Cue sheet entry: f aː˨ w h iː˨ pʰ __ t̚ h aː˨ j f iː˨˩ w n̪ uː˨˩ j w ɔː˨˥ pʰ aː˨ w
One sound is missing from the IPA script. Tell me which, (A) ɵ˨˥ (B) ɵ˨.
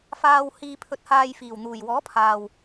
A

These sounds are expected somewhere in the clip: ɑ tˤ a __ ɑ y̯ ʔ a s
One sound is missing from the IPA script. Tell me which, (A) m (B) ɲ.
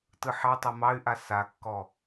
A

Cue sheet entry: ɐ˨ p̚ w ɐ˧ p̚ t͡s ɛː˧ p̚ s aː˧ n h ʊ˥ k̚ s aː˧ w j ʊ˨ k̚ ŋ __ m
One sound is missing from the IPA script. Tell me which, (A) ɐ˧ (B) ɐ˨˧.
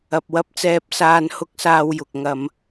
B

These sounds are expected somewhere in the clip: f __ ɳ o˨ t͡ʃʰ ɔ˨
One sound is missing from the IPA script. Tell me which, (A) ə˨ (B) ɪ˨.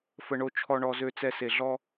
A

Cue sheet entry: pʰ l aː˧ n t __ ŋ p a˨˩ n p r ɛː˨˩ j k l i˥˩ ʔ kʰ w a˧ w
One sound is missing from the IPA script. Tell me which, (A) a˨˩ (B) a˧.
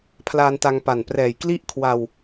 B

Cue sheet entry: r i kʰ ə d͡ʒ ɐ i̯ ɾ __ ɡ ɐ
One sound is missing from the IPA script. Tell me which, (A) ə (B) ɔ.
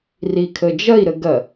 A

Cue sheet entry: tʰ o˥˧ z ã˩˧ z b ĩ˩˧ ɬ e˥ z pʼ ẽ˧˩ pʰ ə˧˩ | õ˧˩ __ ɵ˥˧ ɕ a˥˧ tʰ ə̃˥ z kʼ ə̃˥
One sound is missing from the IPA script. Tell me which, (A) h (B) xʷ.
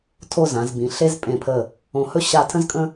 A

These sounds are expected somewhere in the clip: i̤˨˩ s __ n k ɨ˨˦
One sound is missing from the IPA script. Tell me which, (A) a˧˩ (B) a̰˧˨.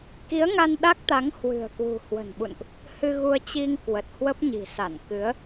A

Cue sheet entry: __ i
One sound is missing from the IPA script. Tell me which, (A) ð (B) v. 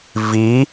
B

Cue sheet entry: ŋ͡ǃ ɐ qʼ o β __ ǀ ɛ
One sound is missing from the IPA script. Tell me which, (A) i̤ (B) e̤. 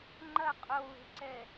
B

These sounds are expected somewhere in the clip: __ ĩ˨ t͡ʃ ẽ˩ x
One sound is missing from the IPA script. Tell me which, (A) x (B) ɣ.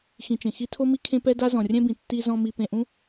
A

